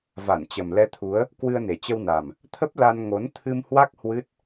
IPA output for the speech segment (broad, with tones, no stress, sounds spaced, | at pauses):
v a˧˩ n t͡ɕ ə˨˩ m l ɛ˧ t̪ʰ u˨˦ ə̯ | k w ɨ˧ ə̯ n e˨˩ t͡ɕ ə˧ w n a˨˩ m | t̪ʰ ə˦˥ p̚ l a˧ n ŋ o˨˦ n t̪ʰ ɨ˧ m h w a˦˥ k̚ h w ɨ˦˥ t̚